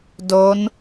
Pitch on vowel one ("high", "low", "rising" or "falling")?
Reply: rising